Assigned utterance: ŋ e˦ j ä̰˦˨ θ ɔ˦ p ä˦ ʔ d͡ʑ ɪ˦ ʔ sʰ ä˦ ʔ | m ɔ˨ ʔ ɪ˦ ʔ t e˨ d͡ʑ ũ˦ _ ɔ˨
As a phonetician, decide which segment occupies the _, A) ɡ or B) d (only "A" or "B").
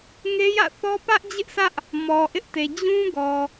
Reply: A